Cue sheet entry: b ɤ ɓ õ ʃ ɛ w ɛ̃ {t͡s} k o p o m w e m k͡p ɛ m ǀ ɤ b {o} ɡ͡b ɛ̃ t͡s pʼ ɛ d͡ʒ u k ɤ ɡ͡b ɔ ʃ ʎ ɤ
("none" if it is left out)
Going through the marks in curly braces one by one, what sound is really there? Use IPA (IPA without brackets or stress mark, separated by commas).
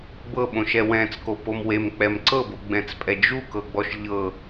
t͡s, o